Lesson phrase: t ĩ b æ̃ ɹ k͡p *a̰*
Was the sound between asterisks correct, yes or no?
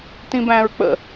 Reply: no